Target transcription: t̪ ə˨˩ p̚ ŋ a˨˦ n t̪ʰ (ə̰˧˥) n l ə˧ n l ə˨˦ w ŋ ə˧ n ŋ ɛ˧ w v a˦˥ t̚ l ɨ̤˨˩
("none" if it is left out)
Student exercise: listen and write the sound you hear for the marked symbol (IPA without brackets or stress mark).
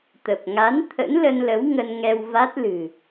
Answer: ə̰˧˥